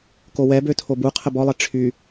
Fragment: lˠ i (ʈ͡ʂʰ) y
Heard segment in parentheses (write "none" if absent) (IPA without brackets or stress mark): ʈ͡ʂʰ